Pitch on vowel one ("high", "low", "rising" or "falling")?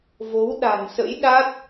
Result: rising